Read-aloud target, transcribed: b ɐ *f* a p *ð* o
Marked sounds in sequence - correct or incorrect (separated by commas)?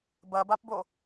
incorrect, incorrect